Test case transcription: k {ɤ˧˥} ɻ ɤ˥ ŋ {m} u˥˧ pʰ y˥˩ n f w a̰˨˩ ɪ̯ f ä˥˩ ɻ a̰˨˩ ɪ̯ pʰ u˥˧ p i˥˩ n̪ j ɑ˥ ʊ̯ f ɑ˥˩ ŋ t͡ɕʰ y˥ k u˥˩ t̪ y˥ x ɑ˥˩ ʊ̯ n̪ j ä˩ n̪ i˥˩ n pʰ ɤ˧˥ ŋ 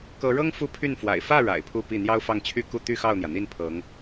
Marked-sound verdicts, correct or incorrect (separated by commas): correct, incorrect